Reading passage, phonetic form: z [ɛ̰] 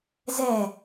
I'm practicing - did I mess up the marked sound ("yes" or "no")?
yes